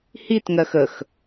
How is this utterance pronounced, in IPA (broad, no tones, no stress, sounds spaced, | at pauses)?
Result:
h i t ŋ ɜ x ə x